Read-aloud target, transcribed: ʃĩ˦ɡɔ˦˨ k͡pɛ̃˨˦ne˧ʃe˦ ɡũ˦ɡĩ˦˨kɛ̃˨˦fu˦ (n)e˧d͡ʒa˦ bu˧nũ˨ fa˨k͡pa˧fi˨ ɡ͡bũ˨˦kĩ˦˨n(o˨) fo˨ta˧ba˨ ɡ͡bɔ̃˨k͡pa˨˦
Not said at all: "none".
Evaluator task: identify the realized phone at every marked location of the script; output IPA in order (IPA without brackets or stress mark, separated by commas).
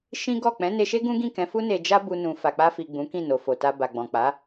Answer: n, o˨